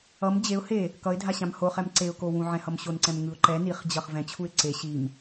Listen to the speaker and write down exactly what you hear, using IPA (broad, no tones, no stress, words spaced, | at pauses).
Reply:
ʌm d͡ʑeʊ̯ he | kʌɪ̯dʱaɕãm hoχɛm ǀeʊ̯kowũ ʕɛ̃hʌmɕonǀɛ̃m ŋɯʊ̯ǃɛ niχd͡ʑʌχ vɛ̃t͡ɕʰuɪ̯ ǀe ɕim